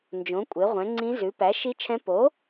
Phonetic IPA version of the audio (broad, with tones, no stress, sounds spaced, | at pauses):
n d͡ʒ õ˩˥ kʷʼ e˩˥ ʁʷ ɛ̃˩˥ ŋ͡ǀ ĩ˧˥ z ʉ˩˥ p æ˩˥ ʃ i˧˥ t͡ʃʰ ɛ̃˧˥ p o˩˥